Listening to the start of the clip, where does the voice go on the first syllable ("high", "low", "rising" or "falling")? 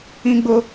high